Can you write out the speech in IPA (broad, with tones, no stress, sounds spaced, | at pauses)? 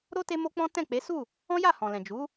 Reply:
ɾ o˦ t e˦ m o˦ k͡p ɔ̃˦ t ɛ̃˦˨ k͡p e˨˦ s u˦˨ | ɔ̃˦ j a˦˨ h ɔ̃˨ l ɛ̃˨ d͡ʒ u˨˦